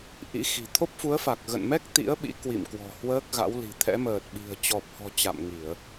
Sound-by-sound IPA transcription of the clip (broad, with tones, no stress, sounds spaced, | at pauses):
ʔ ḭ˧˥ x i̤˨˩ t̪ʰ o˦˥ p̚ f u˨˦ ə̯ f a˨˩ k̚ ɣ ə̰˧˨ n m ɛ˦˥ k̚ t̪ ḭ˧˥ ə̯ ɓ ḭ˧˥ k w ḭ˧˨ m k w ɔ̤˨˩ h w əː˦˥ k̚ ɣ a̰˧˥ w l i̤˨˩ t̪ʰ ɛ̰˧˥ m əː˨˩ t̚ ɓ i̤˨˩ ə̯ t͡ɕ ɔ˨˩ p̚ h ɔ̤˨˩ t͡ɕ a̰˧˨ m ŋ i˧˩˨ ə̯